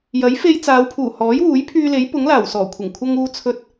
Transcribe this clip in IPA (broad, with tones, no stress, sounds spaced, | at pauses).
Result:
j ɐ˨˥ j f e˧ j t͡s aː˨˧ w pʰ uː˨˩ h ɔː˨˥ j w uː˨˥ j pʰ yː˧ l e˨˥ j p ʊ˨˥ ŋ l aː˨˩ w s ɔː˨˩ kʷʰ ɪ˨˩ ŋ kʷʰ ɐ˧ ŋ uː˧ t͡sʰ ɵ˧ t̚